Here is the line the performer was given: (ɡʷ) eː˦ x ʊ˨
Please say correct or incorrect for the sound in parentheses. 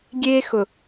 incorrect